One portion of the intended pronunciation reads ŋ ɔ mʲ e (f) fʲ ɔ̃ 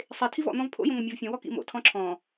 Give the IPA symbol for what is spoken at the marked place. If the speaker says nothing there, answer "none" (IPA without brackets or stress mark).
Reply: v